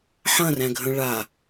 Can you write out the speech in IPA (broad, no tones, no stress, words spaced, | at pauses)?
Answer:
ħɐ̃ræ̃ɡʱə̃ ɭa